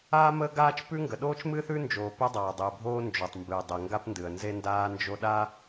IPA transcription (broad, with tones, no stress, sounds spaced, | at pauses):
aː˥ m əː˥ ɡ aː˥ t͡ʃ p ʉ˥ ŋ ɡ ə˩ ɗ oː˥ t͡ʃ m ɨː˥ θ ʉ˥ n d͡ʒ oː˩ p e˥ dˤ aː˩ dˤ ɨː˩ bʱ oː˥ n d͡ʒ o˩ tˤ m b ɨː˩ dˤ e˩ ŋ ɡ a˥ p n d ɨ˩ ə̯ n z e˥ n d aː˥ n d͡ʒ o˥ ɗ a˥